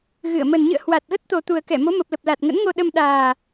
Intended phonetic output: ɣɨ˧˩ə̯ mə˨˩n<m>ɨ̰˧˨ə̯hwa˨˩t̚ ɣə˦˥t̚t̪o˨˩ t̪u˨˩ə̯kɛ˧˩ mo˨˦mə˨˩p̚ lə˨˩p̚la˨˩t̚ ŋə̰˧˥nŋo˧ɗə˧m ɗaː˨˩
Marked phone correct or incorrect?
incorrect: ɲ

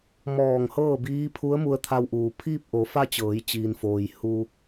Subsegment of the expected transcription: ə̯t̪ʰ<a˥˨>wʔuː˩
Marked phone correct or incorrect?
incorrect: a˧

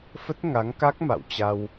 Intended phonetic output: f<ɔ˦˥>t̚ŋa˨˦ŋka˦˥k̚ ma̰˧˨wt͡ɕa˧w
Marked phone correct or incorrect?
incorrect: ə˦˥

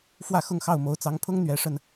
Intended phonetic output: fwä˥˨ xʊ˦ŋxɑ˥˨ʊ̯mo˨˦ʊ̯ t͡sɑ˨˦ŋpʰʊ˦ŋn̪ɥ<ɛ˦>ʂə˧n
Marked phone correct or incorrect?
incorrect: ɛ˨˦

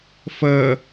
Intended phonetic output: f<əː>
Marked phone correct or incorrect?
correct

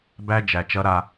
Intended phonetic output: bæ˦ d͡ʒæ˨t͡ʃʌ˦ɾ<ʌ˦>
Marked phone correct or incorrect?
incorrect: a˦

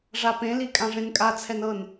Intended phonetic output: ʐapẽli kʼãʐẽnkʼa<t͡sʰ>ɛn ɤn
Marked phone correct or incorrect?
correct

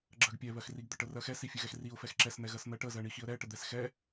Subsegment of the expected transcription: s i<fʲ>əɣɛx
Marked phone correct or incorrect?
correct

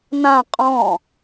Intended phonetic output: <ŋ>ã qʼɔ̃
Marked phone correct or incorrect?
incorrect: n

